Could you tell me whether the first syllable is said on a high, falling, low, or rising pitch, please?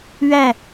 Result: falling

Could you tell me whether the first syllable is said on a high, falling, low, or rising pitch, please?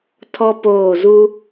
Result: high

